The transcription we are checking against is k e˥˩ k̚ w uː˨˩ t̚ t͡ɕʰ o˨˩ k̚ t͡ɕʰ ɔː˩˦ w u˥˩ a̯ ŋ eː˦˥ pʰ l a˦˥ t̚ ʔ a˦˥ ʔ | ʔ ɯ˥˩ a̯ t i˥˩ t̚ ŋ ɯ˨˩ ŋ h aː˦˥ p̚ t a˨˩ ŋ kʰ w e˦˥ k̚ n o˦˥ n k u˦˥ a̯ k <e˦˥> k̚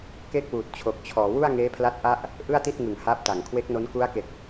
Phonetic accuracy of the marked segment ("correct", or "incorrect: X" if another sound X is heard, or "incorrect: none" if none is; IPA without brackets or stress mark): incorrect: e˨˩